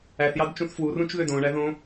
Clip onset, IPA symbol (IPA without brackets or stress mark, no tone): æ